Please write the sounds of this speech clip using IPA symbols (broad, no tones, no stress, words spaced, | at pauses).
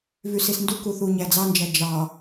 vysisnduku θuːɲæd͡zɑnd͡ʒæ d͡ʒɑ